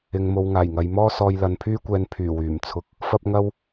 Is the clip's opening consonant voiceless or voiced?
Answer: voiced